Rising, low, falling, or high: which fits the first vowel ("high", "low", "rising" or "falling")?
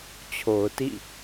low